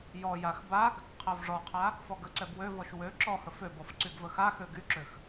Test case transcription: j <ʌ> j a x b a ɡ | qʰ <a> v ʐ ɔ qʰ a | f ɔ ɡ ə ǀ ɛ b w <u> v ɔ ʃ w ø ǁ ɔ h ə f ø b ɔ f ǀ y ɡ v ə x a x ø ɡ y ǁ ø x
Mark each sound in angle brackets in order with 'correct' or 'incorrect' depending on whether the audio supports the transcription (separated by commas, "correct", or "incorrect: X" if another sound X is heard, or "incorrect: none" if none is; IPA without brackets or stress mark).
incorrect: ɔ, correct, incorrect: ø